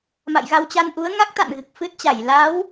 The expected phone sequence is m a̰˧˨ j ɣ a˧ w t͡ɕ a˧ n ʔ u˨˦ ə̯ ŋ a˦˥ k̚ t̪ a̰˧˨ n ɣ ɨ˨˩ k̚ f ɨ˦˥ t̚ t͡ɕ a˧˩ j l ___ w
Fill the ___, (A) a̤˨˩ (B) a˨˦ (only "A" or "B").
B